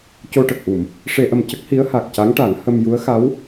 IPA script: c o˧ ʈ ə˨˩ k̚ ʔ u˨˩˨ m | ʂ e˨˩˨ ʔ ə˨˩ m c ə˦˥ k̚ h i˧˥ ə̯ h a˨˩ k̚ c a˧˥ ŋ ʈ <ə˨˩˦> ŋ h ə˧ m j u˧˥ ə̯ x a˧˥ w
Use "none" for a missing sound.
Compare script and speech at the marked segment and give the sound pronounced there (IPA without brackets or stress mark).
a˨˩˦